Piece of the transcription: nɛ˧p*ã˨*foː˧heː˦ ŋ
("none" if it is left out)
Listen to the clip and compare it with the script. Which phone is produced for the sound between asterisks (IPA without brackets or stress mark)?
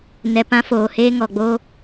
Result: ã˦